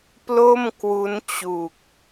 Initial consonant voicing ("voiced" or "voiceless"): voiceless